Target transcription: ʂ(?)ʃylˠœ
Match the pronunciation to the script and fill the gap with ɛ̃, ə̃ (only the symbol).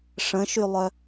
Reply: ə̃